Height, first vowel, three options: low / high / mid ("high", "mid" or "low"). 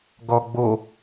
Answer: mid